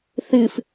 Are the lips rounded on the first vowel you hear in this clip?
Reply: no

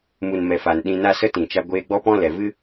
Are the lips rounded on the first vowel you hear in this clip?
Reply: yes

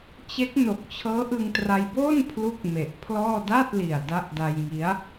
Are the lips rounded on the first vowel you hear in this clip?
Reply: no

